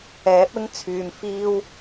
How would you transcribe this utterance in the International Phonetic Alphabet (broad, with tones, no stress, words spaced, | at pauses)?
ɛː˨˥p̚ɪ˥ŋ t͡sʰyː˨mfiː˥w